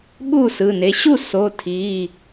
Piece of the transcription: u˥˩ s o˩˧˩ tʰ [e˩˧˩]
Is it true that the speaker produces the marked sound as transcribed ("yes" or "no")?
no